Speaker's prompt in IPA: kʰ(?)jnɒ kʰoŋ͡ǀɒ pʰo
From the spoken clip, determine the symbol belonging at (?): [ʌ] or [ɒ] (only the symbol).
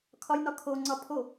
ɒ